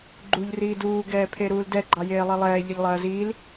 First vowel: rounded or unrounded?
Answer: rounded